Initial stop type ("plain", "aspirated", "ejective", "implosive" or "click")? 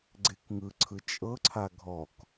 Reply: click